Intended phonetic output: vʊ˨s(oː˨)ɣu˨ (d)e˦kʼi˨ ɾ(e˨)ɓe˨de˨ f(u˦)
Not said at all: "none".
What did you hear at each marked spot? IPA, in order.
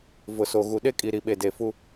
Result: o˨, ɗ, i˨, u˦

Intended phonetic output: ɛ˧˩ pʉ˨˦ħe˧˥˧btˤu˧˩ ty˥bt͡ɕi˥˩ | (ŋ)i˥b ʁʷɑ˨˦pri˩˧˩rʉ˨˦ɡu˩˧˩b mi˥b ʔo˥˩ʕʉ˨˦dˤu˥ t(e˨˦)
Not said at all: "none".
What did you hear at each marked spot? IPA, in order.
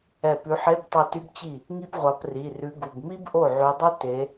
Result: ŋ, e˨˦

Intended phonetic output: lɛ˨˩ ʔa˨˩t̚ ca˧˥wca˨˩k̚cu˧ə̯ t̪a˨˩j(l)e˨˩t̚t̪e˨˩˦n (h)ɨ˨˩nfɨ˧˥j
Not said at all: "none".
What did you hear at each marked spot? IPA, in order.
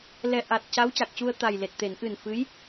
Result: l, ʔ

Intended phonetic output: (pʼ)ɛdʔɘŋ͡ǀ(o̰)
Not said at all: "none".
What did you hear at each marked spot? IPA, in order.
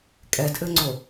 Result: kʼ, o

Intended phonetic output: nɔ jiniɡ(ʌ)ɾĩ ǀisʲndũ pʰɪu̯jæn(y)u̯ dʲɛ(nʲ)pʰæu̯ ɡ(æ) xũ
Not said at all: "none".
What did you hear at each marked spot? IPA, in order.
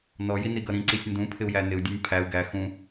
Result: ʌ, ɪ, nʲ, æ

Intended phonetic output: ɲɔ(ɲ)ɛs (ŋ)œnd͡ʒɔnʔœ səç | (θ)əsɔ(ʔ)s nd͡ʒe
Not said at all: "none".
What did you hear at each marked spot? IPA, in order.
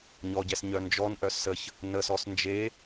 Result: ɟ, ɲ, n, none

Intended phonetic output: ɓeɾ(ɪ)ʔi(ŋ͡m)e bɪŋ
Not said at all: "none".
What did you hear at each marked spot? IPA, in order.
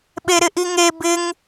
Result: ɪ, ŋ

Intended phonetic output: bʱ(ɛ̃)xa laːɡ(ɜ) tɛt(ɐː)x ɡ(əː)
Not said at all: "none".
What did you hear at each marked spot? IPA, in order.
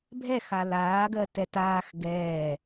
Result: ɛ, ɜ, aː, ɛː

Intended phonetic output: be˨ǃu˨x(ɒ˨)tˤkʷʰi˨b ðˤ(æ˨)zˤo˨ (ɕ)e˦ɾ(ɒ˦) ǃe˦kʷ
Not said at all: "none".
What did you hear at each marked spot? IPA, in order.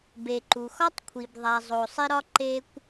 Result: ɒ˦, æ˨, sˤ, ɒ˦

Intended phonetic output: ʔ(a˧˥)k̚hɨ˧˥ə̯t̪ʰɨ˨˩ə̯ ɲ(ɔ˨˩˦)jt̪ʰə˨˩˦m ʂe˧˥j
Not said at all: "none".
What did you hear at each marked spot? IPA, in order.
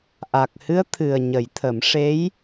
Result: a˨˩, ə˨˩˦

